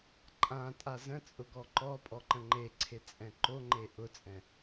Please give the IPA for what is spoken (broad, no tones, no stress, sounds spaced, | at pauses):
ǃʼ ã tʼ a z ə̃ t͡sʼ ʊ ɡ ɔ ǃ ɔ pʼ ɔ ǃ ə̃ ŋ͡ǃ e ǀʰ e t͡sʼ ɛ̃ ǃ o ŋ͡ǃ e ʔ ʊ t͡sʼ ɛ̃